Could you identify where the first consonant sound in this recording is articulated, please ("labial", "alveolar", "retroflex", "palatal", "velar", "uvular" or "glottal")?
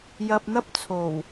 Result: palatal